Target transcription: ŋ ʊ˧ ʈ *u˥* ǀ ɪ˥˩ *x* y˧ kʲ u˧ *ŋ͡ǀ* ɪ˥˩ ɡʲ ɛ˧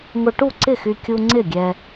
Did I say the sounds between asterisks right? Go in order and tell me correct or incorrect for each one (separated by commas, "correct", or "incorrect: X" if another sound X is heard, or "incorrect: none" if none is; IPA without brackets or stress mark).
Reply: incorrect: u˥˩, correct, correct